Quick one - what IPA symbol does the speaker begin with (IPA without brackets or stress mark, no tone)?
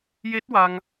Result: j